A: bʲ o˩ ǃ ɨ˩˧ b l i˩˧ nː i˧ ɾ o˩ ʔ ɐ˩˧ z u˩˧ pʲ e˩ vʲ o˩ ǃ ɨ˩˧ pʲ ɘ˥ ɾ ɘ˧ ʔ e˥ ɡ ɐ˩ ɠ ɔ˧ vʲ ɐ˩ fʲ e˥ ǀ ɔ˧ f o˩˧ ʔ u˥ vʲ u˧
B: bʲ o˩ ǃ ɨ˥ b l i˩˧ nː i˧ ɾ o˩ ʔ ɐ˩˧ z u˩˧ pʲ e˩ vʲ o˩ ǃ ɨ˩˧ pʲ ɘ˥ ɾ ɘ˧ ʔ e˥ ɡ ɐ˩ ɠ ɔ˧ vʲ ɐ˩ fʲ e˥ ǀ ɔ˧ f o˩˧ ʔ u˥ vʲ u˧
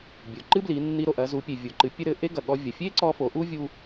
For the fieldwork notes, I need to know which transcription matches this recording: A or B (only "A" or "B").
B